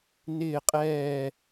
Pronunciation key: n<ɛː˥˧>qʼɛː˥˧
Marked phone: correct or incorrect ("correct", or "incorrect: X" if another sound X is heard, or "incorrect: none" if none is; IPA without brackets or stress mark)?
incorrect: ɪː˥˧